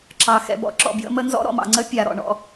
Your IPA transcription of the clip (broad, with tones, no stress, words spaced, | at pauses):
ǁɑ˨ xɛ̰˨ bɔ̰˦ǁɔ̰˨ bjə̰˦mə˦ nzɔ̰˦ ɾɔ̰˨mɑ̰˨ ŋ͡ǀə˦ pʲa˨ɾɔ̰˨ɳɔ̰˦